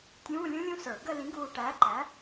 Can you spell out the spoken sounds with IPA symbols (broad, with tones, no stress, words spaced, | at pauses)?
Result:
tʲũː˧˥˧lʲũ˦˥lʲũ˥˧ sə˞˧˩˧ɡə˥˧ lĩ˨˥ɡuː˧˩ʈæː˨˥ǃæ˨˥